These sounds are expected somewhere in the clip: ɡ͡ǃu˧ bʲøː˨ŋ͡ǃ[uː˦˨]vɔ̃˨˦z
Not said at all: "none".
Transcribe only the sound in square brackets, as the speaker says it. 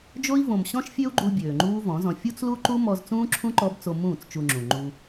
uː˦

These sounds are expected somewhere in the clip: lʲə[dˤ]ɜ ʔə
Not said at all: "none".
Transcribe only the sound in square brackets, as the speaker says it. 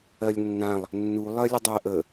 dˤ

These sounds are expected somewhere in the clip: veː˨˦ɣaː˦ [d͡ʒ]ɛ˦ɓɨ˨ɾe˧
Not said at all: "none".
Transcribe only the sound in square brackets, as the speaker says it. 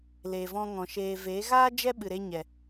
d͡ʒ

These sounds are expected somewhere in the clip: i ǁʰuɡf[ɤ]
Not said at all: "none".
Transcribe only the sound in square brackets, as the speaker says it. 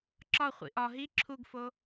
o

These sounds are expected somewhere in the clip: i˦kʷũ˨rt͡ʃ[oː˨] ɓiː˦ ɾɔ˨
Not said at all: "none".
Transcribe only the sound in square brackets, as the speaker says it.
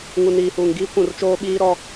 oː˦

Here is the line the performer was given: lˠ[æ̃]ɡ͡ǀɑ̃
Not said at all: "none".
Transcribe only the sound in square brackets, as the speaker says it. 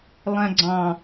æ̃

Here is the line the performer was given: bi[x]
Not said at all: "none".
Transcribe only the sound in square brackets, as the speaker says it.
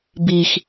x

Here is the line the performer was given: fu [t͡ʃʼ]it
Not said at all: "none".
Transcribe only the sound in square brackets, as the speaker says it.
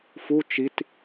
t͡ʃ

